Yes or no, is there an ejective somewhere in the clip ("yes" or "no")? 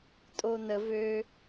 yes